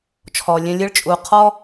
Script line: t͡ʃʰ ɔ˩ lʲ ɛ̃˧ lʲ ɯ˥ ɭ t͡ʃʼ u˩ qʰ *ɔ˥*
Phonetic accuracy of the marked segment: correct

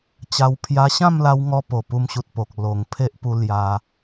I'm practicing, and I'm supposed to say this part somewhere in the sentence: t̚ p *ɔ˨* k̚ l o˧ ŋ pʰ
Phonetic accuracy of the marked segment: incorrect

